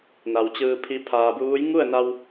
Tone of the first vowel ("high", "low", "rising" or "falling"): low